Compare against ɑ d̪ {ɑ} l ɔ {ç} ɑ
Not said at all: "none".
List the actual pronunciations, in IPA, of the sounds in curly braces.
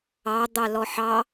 ɑ, ħ

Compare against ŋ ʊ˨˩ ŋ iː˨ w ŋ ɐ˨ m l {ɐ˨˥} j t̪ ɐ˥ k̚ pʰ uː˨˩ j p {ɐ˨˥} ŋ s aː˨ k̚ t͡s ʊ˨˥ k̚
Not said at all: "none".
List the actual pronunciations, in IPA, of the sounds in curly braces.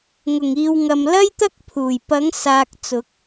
ɐ˥, ɐ˨˥

